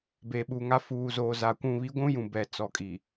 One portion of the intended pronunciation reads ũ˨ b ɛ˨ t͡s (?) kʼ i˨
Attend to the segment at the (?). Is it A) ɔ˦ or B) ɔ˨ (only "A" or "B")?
B